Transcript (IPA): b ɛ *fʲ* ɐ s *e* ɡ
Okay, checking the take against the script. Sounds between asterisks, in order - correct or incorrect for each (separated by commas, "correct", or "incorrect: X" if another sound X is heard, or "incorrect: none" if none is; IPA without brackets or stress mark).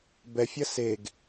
correct, correct